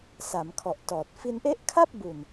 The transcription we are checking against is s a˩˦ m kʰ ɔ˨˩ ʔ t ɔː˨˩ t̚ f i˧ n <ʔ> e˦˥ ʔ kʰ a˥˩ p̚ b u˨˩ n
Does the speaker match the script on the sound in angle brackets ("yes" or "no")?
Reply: yes